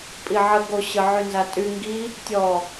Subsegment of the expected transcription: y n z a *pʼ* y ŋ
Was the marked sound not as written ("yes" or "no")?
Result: yes